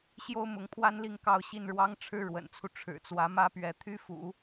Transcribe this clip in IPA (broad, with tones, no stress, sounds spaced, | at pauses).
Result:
ɕ j o˥ ʊ̯ m ʊ˧˥ ŋ pʰ w a˥ n l i˥˧ ŋ k ɑ˥˧ ʊ̯ ɕ i˥˩ n ɻ w ɑ˥ ŋ ʈ͡ʂʰ ɻ̩˥ ɻ w ə̰˨˩ n t͡sʰ u˦ ʈ͡ʂʰ ɻ̩˨˩ t͡s w ä˧˥ m ä˥ p ɥ ɛ˧˥ t̪ʰ y˥ f ṵ˨˩˦